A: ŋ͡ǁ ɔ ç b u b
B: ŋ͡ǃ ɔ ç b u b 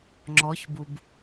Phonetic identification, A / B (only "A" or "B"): A